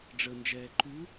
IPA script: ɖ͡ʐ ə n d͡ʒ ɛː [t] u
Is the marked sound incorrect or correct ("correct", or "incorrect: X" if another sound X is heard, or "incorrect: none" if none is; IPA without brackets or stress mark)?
incorrect: ǃ